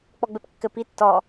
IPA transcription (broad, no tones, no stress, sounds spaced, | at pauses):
k͡p ɔ ɡ͡b ɘ p kː ɘ p i tː ɔ